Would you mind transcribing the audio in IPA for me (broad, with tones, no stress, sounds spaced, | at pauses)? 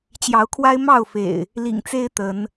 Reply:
t͡ɕ j ɑ˨˦ ʊ̯ kʰ w a˦ ɪ̯ m ɑ˥˨ ʊ̯ f ḛ˨˩ ɪ̯ | l ḭ˨˩ ŋ t͡s e˦ ɪ̯ t̪ ə˨˦ n